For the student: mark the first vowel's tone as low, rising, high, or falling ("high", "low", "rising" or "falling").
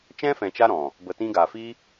high